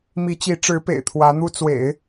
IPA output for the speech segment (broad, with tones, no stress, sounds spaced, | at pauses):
m i˧˥ t͡ɕ i˧˥ ʈ͡ʂ ɻ̩˧˥ p ḛ˨˩ ɪ̯ t̪ʰ w ä˧˥ n̪ u˥ t͡s w ḛ˨˩˦ ɪ̯